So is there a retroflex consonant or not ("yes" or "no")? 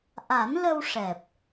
yes